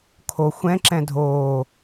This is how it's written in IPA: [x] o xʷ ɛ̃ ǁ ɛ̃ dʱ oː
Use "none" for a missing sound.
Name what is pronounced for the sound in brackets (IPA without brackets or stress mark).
kʰ